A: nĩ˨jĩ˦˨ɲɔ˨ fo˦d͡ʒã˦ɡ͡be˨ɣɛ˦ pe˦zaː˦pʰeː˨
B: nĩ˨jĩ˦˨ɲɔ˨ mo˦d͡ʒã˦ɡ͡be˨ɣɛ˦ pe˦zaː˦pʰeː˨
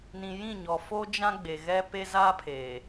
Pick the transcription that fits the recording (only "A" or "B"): A